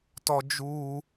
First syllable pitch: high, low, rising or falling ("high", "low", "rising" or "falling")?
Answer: high